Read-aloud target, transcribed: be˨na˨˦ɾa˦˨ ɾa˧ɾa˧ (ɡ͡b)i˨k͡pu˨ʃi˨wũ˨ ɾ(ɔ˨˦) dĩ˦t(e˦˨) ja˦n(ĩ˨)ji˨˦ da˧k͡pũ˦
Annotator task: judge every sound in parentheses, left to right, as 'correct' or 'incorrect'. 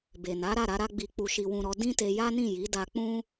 correct, correct, incorrect: e˧, incorrect: ĩ˦˨

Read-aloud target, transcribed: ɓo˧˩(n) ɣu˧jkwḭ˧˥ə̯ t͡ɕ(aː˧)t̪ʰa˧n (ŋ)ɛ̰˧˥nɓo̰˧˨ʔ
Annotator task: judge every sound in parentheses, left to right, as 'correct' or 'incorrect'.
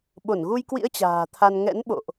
correct, incorrect: a̤ː˨˩, correct

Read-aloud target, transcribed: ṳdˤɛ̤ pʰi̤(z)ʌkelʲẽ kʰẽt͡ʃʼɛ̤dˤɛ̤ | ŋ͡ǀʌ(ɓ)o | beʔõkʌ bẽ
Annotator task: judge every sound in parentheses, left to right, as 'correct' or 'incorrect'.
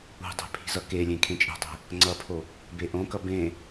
correct, incorrect: pʰ

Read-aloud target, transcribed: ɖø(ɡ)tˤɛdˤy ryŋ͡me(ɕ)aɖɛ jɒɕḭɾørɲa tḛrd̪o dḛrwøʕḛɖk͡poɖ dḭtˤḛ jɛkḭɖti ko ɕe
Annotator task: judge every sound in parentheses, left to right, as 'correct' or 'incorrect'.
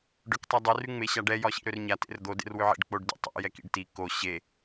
incorrect: k, correct

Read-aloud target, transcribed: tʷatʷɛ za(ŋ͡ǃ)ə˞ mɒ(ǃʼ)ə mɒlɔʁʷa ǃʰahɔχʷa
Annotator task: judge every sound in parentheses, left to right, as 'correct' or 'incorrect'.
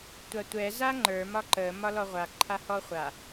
correct, incorrect: ǃ

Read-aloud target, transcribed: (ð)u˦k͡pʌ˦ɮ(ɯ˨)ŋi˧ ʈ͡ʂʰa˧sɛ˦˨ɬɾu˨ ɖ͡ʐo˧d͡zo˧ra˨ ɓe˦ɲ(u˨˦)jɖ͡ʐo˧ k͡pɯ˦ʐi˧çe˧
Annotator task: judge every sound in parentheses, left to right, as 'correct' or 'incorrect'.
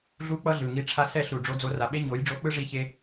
incorrect: ɮ, correct, incorrect: o˨˦

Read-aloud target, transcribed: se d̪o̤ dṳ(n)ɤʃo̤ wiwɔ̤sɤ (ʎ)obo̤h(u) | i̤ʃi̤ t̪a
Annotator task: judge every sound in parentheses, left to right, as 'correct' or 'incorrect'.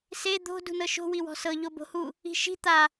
correct, correct, correct

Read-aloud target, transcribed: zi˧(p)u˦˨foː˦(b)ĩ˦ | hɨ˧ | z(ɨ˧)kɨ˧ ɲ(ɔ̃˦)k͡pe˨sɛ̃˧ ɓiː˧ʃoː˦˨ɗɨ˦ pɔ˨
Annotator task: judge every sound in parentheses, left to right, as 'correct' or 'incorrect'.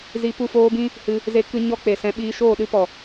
correct, correct, incorrect: e˧, incorrect: ɔ˦

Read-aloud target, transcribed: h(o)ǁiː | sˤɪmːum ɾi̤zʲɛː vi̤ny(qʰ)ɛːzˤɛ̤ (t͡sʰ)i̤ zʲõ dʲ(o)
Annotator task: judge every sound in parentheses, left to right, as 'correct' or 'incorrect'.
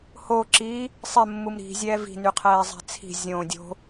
correct, correct, correct, incorrect: o̤

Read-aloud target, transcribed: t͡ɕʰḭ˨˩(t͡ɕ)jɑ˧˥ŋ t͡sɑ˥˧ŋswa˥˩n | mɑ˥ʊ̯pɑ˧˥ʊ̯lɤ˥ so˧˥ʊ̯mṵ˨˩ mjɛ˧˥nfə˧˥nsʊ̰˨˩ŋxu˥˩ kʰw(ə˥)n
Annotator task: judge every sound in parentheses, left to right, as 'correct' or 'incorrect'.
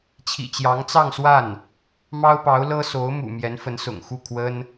correct, correct

